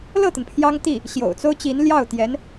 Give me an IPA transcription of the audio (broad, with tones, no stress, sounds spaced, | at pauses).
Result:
l ɤ˥˩ t̪ ə˩ n pʰ j ɑ˥ ŋ t̪ i˥˩ | ɕ j o̰˨˩ ʊ̯ t͡s o˥ ʊ̯ t͡ɕ i˧˥ n l j ɑ˥˩ ʊ̯ t̪ j ɛ˧˥ n